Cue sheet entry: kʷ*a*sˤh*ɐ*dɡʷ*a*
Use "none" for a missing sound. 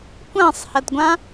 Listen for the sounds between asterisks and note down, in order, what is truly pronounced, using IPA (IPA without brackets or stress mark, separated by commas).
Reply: ã, ɐ, ã